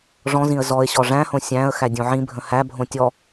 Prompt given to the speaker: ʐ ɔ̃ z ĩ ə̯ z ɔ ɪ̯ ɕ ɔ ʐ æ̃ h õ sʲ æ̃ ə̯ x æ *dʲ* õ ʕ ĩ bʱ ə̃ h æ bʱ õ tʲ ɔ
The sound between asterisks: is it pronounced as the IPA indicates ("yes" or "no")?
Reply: yes